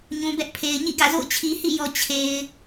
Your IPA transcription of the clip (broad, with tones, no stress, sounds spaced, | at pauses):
ɲ ũ˨ b ɛ˦ ʔ pʰ e˨ ɪ̯ ɲ ḭ˦˨ ɡ ä̰˦˨ z o̰˦˨ ʊ̯ t͡ɕʰ i˨ h ḭ˦˨ j ɔ˨ t͡ɕʰ e˨ ɪ̯